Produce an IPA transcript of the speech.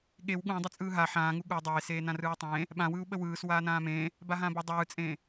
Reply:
ɠ e w ɠ ũ dˤ ʏ t͡sʼ ɯː ɦ a ħ ãː ŋ u ɠ u dˤ eː s eː n ã r ɯː u̯ tˤ ẽː | ɓ ã w ɯː u̯ ɓ ə w ɯː s w aː n ãː m ẽː | b a ɦ ãː b o dˤ ɯː t͡sʼ ẽː

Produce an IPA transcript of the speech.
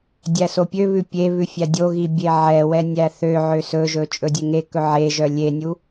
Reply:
dʲ æ s o pʲ ø β ʉ pʲ e β ʉ fʲ æ dʲ o ɣ i bʲ e ʕ ɛ w ɛ nʲ æ θ ø ʕ ø s ɵ ʒ ɵ t͡ʃʼ ɵ dʲ e ŋ e k ɵ ʕ e ʒ œ lʲ e nʲ u

